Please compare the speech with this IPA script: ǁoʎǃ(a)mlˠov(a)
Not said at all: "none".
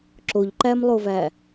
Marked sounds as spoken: æ, æ

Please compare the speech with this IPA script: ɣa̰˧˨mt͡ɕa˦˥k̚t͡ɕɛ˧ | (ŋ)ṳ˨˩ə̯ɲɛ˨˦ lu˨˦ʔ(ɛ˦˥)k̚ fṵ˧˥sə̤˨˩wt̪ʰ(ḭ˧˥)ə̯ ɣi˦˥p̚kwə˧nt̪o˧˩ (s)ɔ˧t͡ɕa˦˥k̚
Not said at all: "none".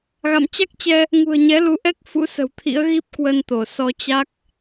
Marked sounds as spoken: ŋ, ɛ˦˥, ḭ˧˥, s

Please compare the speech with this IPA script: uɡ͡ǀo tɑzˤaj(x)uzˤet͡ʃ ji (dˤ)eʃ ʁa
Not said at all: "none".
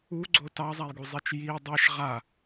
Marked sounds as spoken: ɡ, dˤ

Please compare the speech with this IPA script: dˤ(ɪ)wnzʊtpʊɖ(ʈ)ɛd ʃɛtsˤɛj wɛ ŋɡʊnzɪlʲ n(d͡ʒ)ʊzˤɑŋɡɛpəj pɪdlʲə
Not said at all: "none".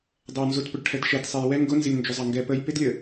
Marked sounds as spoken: ɛ, ʈʰ, d͡ʒ

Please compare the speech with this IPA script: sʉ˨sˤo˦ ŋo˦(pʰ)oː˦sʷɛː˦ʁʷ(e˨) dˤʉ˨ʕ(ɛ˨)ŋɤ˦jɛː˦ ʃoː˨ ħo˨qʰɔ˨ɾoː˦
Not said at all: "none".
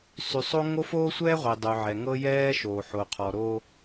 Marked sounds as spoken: f, i˨, ɛ˨

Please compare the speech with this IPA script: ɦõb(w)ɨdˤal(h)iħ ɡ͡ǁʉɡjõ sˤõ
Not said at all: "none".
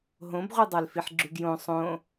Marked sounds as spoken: ʁʷ, f

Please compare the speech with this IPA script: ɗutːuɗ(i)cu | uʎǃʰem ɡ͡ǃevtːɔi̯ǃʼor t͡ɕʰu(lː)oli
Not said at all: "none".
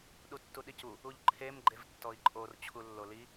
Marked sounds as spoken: i, lː

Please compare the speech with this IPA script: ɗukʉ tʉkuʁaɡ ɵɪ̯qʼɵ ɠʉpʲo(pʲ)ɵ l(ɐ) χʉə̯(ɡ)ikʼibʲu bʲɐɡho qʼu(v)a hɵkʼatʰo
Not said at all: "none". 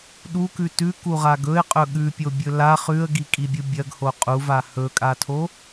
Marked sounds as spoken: bʲ, a, ɡ, v

